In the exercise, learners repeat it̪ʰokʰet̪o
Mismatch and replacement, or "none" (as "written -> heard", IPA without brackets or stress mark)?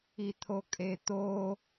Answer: kʰ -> kʼ